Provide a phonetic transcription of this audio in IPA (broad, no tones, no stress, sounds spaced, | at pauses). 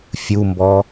fʲ u m b ɔ